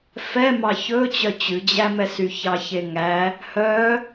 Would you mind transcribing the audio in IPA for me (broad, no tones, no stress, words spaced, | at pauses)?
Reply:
fɛ mɑçɵt͡ɕœ t͡ɕʉd͡ʑæmɛsy çɑçeŋæ | hœ